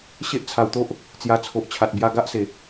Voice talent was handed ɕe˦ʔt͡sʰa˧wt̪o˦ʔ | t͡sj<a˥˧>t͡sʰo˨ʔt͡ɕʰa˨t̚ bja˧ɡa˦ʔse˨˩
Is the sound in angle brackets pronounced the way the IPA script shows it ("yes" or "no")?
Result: no